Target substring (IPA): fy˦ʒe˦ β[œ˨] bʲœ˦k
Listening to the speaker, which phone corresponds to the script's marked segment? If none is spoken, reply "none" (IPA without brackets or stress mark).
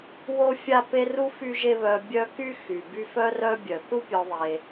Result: œ˨